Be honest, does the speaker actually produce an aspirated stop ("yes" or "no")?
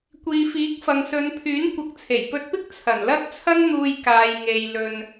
yes